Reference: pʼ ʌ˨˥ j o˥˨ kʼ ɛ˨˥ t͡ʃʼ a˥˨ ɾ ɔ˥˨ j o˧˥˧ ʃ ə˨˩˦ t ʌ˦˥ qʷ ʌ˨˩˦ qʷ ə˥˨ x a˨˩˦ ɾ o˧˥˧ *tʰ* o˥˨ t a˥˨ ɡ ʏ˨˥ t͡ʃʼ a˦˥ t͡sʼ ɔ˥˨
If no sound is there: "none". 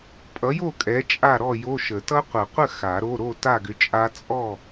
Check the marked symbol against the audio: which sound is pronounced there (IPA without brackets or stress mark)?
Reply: ɾ